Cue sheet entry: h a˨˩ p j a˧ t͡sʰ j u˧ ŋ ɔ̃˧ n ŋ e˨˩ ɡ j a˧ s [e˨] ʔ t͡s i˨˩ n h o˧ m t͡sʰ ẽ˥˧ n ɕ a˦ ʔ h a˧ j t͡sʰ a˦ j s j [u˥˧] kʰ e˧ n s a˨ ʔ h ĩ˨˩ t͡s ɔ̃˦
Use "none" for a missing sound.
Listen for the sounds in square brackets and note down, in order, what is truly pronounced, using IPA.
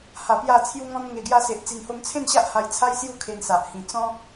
e˨, u˥˧

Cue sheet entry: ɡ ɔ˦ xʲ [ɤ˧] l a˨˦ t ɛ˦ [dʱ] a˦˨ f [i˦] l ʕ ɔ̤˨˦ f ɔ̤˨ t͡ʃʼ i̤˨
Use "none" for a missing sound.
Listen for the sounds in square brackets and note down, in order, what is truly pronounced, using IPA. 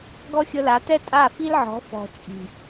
ɤ˧, tʼ, i˦

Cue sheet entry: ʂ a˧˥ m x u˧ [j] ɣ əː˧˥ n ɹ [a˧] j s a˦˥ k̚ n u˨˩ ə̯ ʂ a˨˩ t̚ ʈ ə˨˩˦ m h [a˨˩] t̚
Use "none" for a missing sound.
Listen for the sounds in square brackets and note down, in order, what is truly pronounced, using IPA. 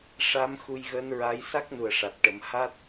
j, a˧˥, a˦˥

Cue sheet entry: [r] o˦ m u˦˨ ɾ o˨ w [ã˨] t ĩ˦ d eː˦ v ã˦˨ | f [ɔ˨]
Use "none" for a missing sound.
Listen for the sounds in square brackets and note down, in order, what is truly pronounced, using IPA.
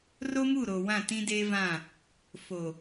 r, ã˦˨, o˨

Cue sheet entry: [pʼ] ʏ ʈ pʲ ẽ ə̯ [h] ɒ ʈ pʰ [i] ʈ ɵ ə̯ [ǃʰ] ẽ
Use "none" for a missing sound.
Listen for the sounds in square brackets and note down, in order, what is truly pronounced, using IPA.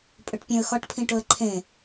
pʼ, x, ĩ, ǃʰ

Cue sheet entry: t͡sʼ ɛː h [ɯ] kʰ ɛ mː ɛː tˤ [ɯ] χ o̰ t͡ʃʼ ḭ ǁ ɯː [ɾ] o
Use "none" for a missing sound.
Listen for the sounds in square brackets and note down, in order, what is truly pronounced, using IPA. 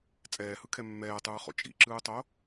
ɯ, ɯː, tˤ

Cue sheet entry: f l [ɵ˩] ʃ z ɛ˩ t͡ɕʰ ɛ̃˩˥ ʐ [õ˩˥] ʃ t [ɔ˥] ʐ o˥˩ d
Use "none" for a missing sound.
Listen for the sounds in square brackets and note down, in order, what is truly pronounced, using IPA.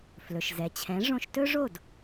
ɵ˩, õ˧, ɵ˥

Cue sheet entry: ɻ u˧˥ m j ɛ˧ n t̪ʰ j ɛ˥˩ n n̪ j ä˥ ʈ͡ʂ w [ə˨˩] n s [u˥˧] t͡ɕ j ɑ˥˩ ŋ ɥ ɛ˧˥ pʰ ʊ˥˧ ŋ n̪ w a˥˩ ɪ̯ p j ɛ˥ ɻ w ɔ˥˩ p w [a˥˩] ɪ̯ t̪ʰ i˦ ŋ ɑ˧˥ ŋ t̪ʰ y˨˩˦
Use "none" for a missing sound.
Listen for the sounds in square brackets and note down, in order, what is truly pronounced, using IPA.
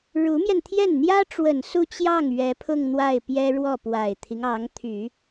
ə˨˩, u˥˧, a˨˩

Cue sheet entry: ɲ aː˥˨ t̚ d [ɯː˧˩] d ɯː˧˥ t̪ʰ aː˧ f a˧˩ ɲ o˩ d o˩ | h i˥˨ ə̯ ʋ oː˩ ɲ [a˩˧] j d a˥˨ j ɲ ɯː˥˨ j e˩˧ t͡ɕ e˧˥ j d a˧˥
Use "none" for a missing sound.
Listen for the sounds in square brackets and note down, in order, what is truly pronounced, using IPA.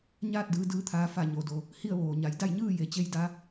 ɯː˧, a˩˧

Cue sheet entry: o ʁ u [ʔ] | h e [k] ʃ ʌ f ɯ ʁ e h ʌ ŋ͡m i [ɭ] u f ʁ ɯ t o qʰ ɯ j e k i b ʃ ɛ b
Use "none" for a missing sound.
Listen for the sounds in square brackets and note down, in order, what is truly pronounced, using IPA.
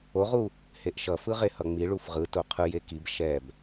none, ʔ, ɭ

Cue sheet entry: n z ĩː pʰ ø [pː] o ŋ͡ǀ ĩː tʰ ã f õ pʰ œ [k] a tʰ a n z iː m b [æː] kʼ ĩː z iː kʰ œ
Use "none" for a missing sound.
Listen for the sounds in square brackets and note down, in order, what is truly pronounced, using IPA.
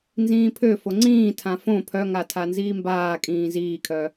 f, ŋ, aː

